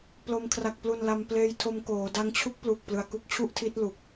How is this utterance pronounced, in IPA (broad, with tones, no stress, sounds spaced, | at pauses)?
p l o˧ m kʰ r a˨˩ k̚ p l u˨˩ n l a˧ m p l eː˧ j tʰ o˧ m k oː˩˦ d a˧ ŋ t͡ɕʰ u˦˥ k̚ p l u˨˩ k̚ p l ɯ˨˩ a̯ k u˥˩ k̚ t͡ɕʰ u˥˩ ʔ tʰ i˦˥ t̚ l u˨˩ k̚